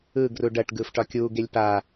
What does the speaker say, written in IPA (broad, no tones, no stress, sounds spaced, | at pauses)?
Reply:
ɯ ɡ r u ɖ ɐ ʈ ɡ ɯː f ʈ ɒ kʲ uː ɡ e lʲ p a